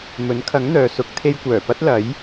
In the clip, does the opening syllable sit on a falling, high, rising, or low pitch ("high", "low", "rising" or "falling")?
rising